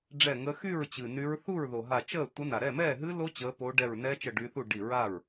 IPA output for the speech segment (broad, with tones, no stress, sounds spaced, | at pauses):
ɖ͡ʐ ɛ˧˩ ŋ ə˨˦ x y˥˩ ɹ t͡ɕ ɨ˩ n y˨˦ ɹ θ u˥˩ ɹ ð o˩ ɦ a˧˩ t͡ʃ əː˥˩ tʷ ə˨˦ n a˩ ɾ ɛ˥˩ m ɛː˥˩ ɦ ɨ˦˥ l o˦˥ t͡ɕ əː˨˦ p o˨˦ ɖ ɛ˧˩ ɹ n ɛː˦˥ t͡ʃ ə˧˩ ɖ y˨˦ θ u˥˩ ɖ i˧˩ ɹ a˥˩ ɹ